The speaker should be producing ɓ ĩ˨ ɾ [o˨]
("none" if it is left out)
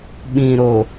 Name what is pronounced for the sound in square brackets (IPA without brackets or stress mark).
o˨